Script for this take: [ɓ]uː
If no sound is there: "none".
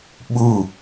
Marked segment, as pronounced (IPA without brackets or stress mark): ɓ